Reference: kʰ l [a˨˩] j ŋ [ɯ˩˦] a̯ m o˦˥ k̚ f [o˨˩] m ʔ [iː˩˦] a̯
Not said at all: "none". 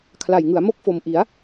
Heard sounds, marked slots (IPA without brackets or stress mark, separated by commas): a˨˩, ɯ˩˦, o˨˩, i˩˦